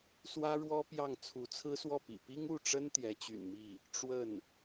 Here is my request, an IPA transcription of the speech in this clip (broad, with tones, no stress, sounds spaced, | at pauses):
s w ä˥ ɻ w ɔ˥ p j ɑ˥˩ ŋ t͡sʰ u˧˥ t͡sʰ ɹ̩˥ s w ɔ˥˩ p ḭ˨˩ p i˥ ŋ u˥˩ ʈ͡ʂ ə˥ n t̪ j ɛ˧˥ t͡ɕ y̰˨˩ n m i˥˩ | ʈ͡ʂ w ə˥˩ n